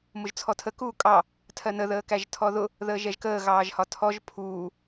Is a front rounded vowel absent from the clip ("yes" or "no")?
yes